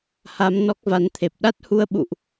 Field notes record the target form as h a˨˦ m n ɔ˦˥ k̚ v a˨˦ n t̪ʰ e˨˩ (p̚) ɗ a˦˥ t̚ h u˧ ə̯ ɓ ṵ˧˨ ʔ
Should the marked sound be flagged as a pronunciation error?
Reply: no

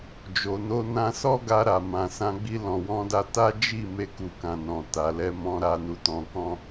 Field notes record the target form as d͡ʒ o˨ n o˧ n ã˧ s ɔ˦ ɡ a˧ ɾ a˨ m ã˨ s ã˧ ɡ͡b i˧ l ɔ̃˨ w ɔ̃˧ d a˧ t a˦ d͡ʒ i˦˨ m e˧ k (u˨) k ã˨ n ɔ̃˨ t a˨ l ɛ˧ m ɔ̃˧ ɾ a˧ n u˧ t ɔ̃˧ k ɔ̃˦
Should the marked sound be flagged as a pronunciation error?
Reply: no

